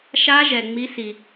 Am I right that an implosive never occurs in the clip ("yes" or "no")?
yes